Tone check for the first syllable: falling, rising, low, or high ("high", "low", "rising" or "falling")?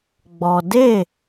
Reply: low